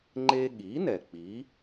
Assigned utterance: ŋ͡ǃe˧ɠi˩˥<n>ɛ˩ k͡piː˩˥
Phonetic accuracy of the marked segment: correct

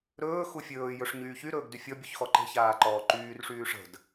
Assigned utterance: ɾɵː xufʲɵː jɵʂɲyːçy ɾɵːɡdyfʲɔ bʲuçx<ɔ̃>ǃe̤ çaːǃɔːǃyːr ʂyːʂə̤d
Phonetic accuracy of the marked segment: incorrect: ɔ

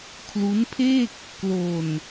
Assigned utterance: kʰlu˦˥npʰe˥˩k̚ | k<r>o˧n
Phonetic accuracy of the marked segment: incorrect: l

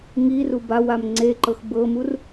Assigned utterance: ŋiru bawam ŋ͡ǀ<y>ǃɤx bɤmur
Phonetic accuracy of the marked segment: incorrect: e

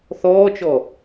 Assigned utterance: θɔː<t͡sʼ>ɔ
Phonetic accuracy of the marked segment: incorrect: t͡ʃ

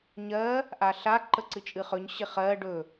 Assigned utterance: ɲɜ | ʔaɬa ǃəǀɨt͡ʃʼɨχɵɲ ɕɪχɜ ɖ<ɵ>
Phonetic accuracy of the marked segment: correct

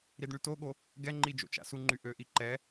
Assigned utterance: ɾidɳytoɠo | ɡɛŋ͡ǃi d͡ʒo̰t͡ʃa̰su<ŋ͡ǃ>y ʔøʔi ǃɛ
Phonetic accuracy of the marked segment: correct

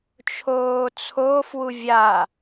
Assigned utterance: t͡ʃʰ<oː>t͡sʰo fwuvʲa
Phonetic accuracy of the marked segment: correct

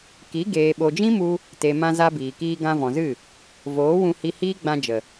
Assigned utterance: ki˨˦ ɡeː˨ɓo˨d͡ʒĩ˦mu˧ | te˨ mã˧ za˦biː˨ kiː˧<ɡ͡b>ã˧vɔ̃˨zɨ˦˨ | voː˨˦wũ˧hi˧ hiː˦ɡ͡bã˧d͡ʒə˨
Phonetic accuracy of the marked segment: incorrect: ɡ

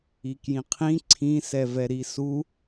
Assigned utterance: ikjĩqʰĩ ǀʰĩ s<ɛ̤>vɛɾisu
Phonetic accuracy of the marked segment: incorrect: ɛ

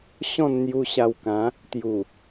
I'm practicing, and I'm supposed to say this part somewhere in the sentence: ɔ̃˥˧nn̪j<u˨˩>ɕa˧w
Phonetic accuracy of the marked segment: incorrect: u˧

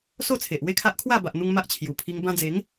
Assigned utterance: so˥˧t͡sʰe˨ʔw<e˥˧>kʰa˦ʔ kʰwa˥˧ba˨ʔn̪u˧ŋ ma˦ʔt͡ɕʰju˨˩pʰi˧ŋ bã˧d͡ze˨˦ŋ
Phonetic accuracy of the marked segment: correct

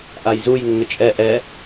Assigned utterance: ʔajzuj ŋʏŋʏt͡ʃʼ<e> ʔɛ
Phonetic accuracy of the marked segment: incorrect: ɛ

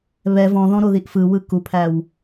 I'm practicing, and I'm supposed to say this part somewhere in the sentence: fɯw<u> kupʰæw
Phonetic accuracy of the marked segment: incorrect: ɯ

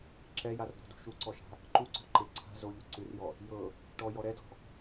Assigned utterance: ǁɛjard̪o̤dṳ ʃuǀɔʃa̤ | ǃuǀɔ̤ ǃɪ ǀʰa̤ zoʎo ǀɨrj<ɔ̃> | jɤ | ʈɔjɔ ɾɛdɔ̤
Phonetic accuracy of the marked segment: incorrect: ɔ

